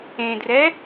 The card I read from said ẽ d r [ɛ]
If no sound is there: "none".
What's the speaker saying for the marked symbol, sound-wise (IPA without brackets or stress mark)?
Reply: ɛ